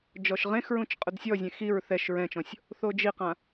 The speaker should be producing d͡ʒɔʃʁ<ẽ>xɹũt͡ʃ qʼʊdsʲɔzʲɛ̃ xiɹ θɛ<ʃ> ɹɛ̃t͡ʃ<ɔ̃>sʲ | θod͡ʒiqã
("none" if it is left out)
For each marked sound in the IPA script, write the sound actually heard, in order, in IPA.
ẽ, ʃ, ɔ̃

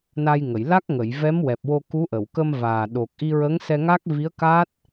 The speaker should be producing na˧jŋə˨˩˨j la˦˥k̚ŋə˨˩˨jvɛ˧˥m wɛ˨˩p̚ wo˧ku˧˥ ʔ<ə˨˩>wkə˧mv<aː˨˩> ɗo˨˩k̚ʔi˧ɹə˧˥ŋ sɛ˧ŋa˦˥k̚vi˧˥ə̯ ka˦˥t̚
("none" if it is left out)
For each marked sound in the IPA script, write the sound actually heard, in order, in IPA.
ə˨˩˨, aː˨˩

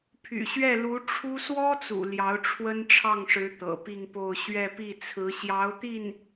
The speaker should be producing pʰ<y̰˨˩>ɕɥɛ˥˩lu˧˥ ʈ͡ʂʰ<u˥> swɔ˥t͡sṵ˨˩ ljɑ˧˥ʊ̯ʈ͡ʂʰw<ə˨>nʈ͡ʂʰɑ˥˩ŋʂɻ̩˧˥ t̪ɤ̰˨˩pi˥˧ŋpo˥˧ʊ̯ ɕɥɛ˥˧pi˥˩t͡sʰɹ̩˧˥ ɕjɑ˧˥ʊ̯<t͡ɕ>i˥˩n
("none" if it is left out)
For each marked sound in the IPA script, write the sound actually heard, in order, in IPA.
y̰˨˩, u˥, ə˥, t̪

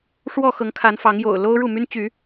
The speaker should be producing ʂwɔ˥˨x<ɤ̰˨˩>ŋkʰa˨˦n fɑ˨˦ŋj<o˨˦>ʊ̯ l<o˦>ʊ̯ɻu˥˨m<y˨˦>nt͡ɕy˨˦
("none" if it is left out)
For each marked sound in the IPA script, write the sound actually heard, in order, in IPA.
ɤ˨˦, o̰˨˩, o˦, y˦

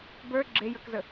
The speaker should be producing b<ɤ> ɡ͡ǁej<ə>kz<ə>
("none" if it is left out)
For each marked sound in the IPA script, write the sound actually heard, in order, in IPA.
ə˞, ə˞, ə

